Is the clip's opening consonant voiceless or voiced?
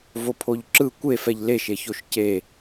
voiced